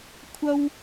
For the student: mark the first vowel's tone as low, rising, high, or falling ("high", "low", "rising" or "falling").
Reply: high